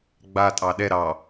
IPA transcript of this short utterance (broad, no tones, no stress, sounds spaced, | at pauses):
ɡ͡b a tʼ ɑ ɗ ɛ ɾ ɑ